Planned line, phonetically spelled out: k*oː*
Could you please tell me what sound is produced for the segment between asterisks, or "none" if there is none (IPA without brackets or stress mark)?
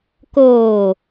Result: oː